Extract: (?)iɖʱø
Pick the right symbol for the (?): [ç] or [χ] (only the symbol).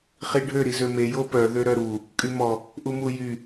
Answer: χ